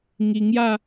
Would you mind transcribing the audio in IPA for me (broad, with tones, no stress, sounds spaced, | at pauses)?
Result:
ŋ i˧ ŋ j a˥˧